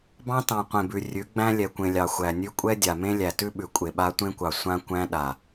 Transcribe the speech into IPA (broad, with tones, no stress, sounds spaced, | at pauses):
b ɑ̃˦ t ɑ̃˨ qʷ ẽ˨ b ʉ˨ rʲ ʉ˨˦ ɡ͡b æ̃˦ lʲ ɛ˨ kʷ ẽ˨ lʲ ɑ˨ xʷ æ˨ nʲ ʉ˦ kʷʼ ɛ˦ dʲ a˨ m ẽ˦ lʲ æ˨ t ʉ˦ ɓ ʉ˨ kʷʼ e˨ ɓ a˦ tʷ ẽ˦ kʷ ɑ˨ sʷ ã˦ kʷ æ̃˦ ɗ a˨